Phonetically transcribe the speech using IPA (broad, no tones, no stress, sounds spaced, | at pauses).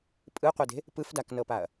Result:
pʼ ɯ qʷ ɛ d e̤ | p ɯ f d a k n ɤ p a ɐ̯